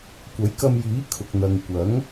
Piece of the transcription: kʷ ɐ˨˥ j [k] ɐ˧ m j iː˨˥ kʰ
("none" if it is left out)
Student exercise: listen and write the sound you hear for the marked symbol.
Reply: k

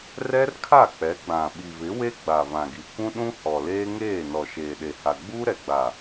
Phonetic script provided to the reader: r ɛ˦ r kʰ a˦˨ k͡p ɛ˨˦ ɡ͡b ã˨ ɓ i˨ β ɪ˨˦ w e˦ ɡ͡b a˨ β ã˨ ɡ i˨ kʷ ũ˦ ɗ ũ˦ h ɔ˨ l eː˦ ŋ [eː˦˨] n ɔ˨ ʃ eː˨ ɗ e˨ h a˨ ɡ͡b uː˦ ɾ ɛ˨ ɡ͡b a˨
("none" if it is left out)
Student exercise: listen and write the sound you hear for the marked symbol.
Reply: eː˦˨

